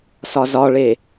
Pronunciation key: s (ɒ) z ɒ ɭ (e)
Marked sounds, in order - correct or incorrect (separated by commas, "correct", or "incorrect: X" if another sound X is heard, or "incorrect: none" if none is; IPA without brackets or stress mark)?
correct, correct